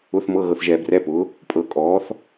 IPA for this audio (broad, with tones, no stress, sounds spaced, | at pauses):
ʊ˧˥˧ θ m ɤ˧˥˧ ɣ ɤ˨ θ ʒ ɛː˨ b r ɛ˧˥˧ p ʊ˩˥ | pʼ ɤ˨ kʼ ɔː˩˥ θ